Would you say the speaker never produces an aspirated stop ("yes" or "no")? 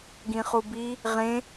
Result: yes